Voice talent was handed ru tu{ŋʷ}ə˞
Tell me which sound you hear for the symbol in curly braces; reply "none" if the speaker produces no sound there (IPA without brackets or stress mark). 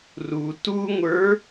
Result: ŋʷ